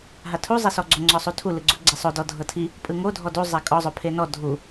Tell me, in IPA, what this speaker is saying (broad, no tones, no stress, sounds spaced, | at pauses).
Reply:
ɦ a tʰ u zˤ e s ɔ ɡ͡ǀ o ŋ͡ǀ ɔ sˤ u tʰ u l ɯ ɡ͡ǀ u ɡ͡ǀ e sˤ o d ɔ dʱ ɤ tʰ i | pʼ ɯ ŋ o dʱ ɔ d u zˤ ɛ kʼ ɔ zˤ o pʰ e n ɔ dʱ u